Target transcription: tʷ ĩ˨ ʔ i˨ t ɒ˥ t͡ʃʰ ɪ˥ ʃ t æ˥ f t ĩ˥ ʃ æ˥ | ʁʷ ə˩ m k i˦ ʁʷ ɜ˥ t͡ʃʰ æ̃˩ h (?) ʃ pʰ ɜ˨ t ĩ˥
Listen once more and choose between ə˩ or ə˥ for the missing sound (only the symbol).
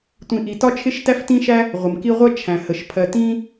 ə˩